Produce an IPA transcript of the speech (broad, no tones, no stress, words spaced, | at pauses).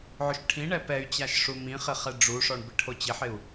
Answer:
ʕʊʃʈʰĩɳɛ pɛy̯t͡ɕaʃ ʂumĩχɪ χɛɖ͡ʐuʂɔɳ bɪʈʰot͡ɕɪħɪu̯